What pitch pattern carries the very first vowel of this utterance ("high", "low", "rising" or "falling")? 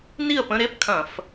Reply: falling